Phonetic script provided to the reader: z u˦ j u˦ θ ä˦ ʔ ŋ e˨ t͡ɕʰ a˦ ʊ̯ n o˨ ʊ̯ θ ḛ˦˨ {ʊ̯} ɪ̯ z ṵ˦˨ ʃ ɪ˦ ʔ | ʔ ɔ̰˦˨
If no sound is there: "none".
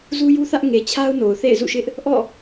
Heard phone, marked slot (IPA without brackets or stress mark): none